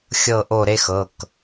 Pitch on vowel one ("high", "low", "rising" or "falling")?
falling